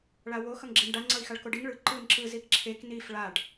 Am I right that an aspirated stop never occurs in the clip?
no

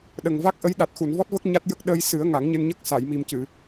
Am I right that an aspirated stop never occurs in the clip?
yes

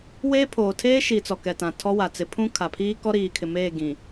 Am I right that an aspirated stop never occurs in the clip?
no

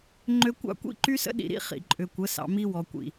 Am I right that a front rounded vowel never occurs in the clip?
no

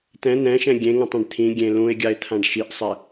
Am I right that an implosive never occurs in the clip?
yes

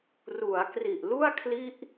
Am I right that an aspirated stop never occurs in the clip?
no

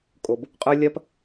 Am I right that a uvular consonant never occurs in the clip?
no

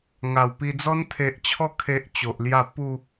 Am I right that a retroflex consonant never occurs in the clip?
yes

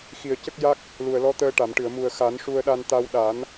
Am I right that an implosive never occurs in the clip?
no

